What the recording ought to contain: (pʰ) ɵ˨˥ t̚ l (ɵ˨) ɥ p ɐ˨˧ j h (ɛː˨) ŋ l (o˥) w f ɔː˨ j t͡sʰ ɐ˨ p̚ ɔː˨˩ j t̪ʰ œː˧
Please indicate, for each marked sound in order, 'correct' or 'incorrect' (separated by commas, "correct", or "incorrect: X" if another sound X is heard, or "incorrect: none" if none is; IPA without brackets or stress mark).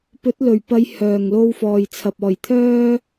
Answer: incorrect: p, incorrect: ɵ˨˩, incorrect: œː˨, incorrect: o˧